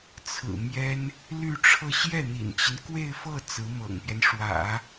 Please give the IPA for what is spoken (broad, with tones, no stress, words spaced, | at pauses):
t͡sʰɹ̩˨˩ mjɛ˥n | ly˥˧ʈ͡ʂʰɤ˥˧ ɕjɛ˥˩n̪ḭ˨˩nt͡ɕi˦n kwe˥˧ɪ̯fɤ˥˩ t͡sɹ̩˧˥mɤ̰˨˩ŋpjɛ˦n ʂwä̰˨˩˦